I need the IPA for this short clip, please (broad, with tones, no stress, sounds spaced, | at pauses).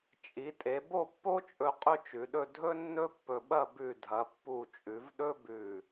t͡ʃʼ i˩˧ tʼ e˩˧ b o˥˧ pː o˥ t͡ʃʼ ɵ˧ qʼ ɵ˥ t͡ʃ ʉ˩˧ ɗ ɵ˥˧ dʱ ɵ˥ nː ɵ˥ pː ɵ˧ ɓ ɐ˥˧ b ʉ˧˩ dʱ ɐ˩˧ pː u˧˩ t͡ʃʼ ʉ˩˧ v ɗ ɵ˥ b ʉ˧˩